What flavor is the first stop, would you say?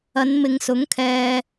aspirated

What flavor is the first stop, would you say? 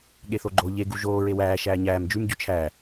implosive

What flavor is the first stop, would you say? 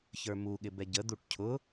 implosive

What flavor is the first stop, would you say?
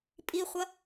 ejective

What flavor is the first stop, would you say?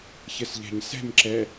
click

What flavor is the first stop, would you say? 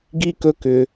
plain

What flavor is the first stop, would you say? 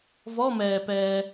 plain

